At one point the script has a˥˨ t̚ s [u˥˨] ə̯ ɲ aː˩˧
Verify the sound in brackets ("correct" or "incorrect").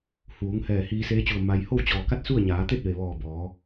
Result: correct